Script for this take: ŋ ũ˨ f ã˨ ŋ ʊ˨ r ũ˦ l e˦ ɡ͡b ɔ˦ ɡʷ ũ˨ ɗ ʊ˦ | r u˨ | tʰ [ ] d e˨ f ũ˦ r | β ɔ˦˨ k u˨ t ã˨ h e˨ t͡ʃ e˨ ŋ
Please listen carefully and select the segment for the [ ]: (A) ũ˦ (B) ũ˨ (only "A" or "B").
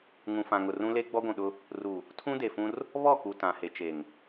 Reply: A